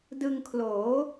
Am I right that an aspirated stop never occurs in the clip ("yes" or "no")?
no